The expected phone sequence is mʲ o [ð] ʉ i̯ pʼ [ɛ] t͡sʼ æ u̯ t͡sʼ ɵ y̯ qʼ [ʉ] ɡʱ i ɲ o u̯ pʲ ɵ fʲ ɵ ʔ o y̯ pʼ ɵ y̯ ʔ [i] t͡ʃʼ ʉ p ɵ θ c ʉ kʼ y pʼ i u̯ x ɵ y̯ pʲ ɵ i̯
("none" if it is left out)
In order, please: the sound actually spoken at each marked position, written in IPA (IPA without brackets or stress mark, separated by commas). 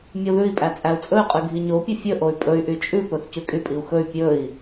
ð, æ, ʉ, y